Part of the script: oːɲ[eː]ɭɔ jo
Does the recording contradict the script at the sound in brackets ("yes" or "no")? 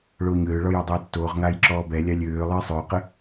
yes